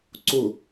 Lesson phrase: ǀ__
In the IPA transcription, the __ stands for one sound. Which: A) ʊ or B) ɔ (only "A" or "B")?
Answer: A